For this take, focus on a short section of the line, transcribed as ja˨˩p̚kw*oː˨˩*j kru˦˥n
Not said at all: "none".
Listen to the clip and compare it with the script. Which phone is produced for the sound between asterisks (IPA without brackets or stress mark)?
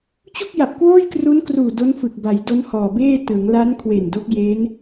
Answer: oː˥˩